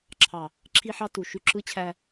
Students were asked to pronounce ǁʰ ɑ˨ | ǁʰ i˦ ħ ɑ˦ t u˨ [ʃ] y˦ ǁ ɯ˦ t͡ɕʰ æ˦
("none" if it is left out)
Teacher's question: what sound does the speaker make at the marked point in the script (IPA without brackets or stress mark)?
ʃ